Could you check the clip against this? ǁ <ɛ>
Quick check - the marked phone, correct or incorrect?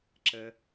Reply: incorrect: ə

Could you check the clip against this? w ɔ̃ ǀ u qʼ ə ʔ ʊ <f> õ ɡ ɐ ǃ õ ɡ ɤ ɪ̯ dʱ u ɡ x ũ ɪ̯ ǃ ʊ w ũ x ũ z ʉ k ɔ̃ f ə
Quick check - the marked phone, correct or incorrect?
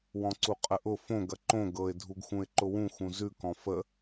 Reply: correct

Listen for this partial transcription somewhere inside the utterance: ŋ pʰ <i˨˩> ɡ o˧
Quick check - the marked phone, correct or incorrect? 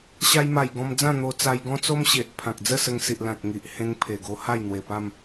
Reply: incorrect: e˨˩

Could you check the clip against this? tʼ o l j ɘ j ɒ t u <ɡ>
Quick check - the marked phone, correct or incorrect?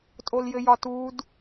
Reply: incorrect: d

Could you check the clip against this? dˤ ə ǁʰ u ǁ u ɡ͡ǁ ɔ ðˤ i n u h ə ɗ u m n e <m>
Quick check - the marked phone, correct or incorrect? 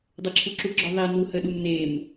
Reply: correct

